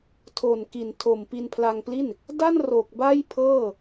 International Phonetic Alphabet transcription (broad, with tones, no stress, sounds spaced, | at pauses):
tʰ o˨˩ n k i˨˩ n tʰ o˨˩ m p i˧ n pʰ l a˧ ŋ p l i˥˩ n | d a˥˩ n r o˨˩ k̚ b a˥˩ j pʰ ɤː˥˩